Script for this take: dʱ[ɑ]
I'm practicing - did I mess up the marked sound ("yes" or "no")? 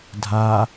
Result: yes